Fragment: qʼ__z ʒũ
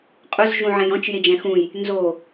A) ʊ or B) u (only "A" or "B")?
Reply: A